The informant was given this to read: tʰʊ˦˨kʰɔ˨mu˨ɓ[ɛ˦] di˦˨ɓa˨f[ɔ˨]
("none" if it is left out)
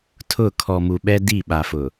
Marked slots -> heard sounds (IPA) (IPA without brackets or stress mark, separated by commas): ɛ˦, ʊ˨